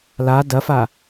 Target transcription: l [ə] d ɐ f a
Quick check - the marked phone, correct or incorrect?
incorrect